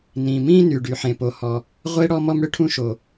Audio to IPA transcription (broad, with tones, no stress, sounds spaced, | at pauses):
n ĩ˩ m ĩ˥ n y˩ ɖ y˩ ħ ẽ˩ p o˩ h ɔ˩ | ʁʷ e˥ ɽ ɔ˥ m ɔ˥ m ɽ ʏ˥ ʈʰ ũ˥ ʃ o˩